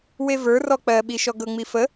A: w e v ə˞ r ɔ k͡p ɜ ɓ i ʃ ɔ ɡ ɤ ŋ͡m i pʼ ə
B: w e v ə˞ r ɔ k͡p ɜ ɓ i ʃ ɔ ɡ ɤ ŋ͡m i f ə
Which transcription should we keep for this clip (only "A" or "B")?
B